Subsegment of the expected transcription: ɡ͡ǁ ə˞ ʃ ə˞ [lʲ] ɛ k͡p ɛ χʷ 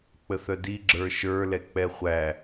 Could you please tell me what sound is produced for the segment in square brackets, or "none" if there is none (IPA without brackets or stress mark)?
l